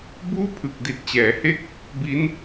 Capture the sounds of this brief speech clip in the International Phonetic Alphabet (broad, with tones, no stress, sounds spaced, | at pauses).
b uː˥˩ pʰ ɯ˨˩ k̚ d i˨˩ t̚ t͡ɕ ɛː˩˦ h e˦˥ k̚ | b i˦˥ n